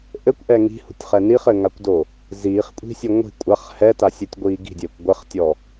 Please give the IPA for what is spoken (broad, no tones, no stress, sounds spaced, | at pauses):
ʔ ɘ kʷ ʔ ɛ ŋ i̤ h ṳ tʲ χ ɛ n i χ ɘ ŋ a kʷ d o | z iː χ kʷʼ i̤ sʲ ɨ ŋʷ i̤ kʷʼ a χ h ɛ t a sʲ ɘ tʲ ɡʷ iː ɡ i̤ dʲ ɘː kʷ ɡʷ ɛ χ tʲ ɔ